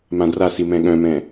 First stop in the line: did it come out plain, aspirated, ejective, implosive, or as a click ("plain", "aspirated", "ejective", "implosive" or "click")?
plain